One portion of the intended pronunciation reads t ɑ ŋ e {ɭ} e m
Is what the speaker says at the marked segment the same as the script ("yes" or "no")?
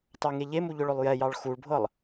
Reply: no